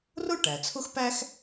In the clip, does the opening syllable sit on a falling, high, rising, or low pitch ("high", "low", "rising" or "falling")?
high